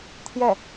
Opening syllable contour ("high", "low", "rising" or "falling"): falling